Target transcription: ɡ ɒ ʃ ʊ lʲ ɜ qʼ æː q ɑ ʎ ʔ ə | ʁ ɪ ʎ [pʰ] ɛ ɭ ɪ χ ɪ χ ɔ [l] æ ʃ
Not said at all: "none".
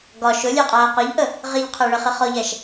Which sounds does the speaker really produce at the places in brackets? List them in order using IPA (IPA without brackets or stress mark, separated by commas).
qʰ, ʎ